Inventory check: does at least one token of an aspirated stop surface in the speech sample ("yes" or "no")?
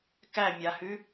no